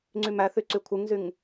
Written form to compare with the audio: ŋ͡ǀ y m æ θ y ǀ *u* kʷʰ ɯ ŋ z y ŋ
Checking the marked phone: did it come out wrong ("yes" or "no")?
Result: yes